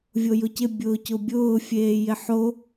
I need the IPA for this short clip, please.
vʲojʊcɪ bʲʊːcʊbʲʊː fʲeːjɪħo

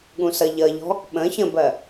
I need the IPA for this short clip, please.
ɠũsʌʎʌʎɔ̤ | ɓə̃ çə̃bɜ

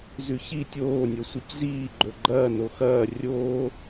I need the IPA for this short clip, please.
zʉçi tʲoː nʲosʷecziː ɡ͡ǃɵɡ͡ǃɐː noxɐː rʲoː

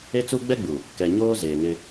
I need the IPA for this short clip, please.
e˦t͡su˦ ɡ͡bɛ˦ɡ͡bu˨ | kɛ˨ɲoː˦ zeː˨ŋɪ˦

